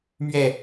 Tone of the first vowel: falling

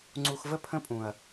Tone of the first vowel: high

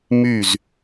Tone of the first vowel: falling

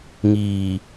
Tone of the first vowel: low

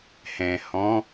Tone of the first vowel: low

